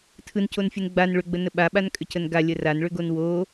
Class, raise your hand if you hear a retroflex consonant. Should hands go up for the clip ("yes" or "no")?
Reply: yes